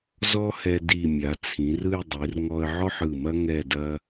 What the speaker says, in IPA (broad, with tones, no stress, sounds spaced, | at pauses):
z ɔ˥ h ɛ˧ d i˧˩ mʲ a˩˧ t͡sʰ ĩ˩˧ r ɯ˥˧ j dˤ i˩˧ r ŋ ɔ˧ ə̯ ʕ ɔ˥ ħ ɯ˧˩ m ɐ˥ ŋ ɛ˥˧ d ɐ˥